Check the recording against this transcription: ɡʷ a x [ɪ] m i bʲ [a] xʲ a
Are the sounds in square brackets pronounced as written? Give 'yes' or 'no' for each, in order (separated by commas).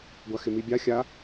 yes, yes